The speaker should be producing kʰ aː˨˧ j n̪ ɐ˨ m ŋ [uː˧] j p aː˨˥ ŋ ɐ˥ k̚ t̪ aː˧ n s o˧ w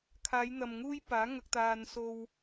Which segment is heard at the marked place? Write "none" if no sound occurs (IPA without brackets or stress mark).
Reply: uː˥